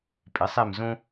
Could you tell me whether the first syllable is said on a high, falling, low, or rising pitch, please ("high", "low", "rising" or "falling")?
rising